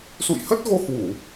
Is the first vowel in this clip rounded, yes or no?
yes